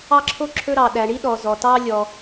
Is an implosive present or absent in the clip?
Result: present